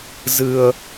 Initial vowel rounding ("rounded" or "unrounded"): unrounded